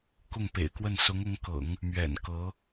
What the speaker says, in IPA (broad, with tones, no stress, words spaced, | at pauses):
kʊ˥˩ŋpḛ˨˩ɪ̯kwə˥˩n sʊ˧˥ŋʊ˧˥ŋkɤ̰˨˩˦ŋ | mɥɛ̰˨˩nkɤ˧˥